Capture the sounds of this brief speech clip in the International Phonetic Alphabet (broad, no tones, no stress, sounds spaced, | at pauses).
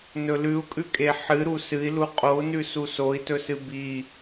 n ɵ l ʉ u̯ kʼ ʉ kʼ e ħ ɨ ɾ u s ɨ i̯ l u qʼ o u̯ n ʉ s u s o i̯ t ɵ s ɨ b i